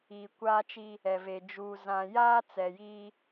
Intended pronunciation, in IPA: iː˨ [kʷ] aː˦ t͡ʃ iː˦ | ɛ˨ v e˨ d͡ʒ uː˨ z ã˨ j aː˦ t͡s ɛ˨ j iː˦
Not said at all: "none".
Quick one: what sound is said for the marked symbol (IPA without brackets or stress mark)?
kʷ